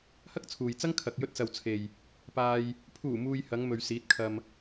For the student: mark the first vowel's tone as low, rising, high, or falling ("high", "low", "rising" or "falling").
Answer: high